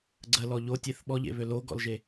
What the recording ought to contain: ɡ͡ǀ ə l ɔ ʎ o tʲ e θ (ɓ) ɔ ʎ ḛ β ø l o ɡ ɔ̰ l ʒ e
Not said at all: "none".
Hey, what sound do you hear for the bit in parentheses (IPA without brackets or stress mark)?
ɓ